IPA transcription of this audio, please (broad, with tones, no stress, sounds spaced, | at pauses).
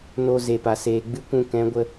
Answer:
n o˧ z e˨ p a˨ s eː˨ ɡ͡b ɨ˦ kʷ ũ˧ k ɛ̃˨˦ ɡʷ ə˧